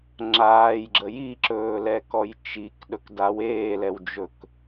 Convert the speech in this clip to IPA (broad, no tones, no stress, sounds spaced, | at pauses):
ŋ͡ǁ aː j ɡ͡ǁ ə j i ǁ ɵː l ɛ k ɔ j t͡ʃ i k ɗ ɵ k d a w eː l ɛ w d͡ʒ ɵ k